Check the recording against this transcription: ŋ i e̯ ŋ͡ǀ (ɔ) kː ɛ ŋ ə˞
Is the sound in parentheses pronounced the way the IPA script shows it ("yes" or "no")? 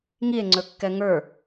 no